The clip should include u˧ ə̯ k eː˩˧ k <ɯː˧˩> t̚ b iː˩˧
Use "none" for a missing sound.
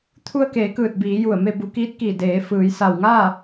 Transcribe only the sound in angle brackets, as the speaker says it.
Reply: ɯː˧˩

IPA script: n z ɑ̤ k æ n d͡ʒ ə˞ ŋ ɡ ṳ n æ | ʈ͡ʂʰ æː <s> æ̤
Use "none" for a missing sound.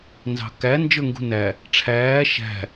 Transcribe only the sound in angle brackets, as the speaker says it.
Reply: ʃ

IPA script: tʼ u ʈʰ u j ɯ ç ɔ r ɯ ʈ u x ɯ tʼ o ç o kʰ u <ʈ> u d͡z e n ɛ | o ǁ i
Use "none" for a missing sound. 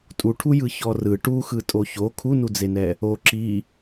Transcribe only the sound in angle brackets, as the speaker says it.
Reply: n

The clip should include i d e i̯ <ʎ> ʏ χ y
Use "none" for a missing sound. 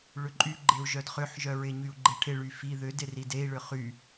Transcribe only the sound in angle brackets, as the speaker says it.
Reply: ɭ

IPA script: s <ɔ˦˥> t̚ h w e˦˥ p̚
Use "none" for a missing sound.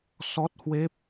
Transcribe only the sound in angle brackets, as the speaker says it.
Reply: ɔ˦˥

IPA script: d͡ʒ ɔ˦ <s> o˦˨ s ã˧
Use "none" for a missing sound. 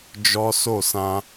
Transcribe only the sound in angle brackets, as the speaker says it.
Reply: s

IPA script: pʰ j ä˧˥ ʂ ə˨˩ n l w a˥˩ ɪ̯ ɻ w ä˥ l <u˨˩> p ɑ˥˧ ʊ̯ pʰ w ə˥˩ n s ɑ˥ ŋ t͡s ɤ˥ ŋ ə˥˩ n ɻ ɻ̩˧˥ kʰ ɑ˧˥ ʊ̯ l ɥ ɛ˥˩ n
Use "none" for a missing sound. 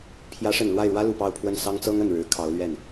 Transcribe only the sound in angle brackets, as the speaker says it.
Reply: u˨˩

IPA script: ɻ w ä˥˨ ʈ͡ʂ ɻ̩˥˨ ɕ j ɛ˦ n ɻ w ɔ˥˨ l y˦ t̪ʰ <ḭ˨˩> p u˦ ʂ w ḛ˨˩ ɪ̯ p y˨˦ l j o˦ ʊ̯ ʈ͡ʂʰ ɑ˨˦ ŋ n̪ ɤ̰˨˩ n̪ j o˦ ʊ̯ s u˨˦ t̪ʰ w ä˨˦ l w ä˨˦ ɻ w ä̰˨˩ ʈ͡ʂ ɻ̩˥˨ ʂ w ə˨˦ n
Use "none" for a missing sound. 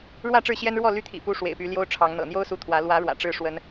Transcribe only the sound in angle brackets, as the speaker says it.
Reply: ḭ˨˩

